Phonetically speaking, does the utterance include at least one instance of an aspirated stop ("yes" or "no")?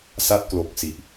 no